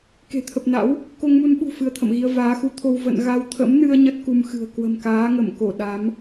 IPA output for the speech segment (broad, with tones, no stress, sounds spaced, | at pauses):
k e̤˨˩ t̪ʰ ə˨˩ p̚ n a̰˧˥ w | k o˧ ŋ m u˧ n ɓ ṳ˨˩ f ɨ˧ ə̯ t̪ʰ ə̰˧˨ m ɣ i˧ ə̯ v aː˨˦ x u˨˦ t̪ʰ o˧ w v ə̰˧˨ n ɣ a˧ w t̪ʰ ə̰˧˥ m n ɨ˧ ə̯ ɲ ə˦˥ t̚ k u˧ m x ɨ̤˨˩ ə̯ k w ə̤˨˩ m k aː˨˦ ŋ ə˧˩ m k o˧˩ ɗ a˨˦ m